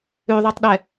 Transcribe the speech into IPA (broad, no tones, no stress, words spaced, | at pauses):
ʉðˤɛtˤɗɛ